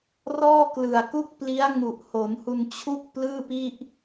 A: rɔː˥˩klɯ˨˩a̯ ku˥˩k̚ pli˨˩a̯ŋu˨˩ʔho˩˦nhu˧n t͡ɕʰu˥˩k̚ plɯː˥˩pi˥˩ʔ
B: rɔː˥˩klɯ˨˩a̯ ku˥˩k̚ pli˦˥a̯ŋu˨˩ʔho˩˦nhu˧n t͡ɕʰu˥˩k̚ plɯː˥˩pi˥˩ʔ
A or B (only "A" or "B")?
B